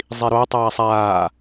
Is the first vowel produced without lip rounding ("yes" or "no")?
yes